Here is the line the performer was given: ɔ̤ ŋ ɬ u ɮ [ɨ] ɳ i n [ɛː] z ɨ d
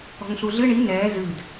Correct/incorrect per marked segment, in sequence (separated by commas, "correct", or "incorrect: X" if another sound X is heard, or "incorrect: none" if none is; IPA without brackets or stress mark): correct, correct